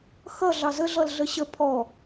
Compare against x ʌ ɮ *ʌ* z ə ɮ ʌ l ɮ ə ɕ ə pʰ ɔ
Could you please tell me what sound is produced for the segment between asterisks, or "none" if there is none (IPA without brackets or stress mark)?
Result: ɑ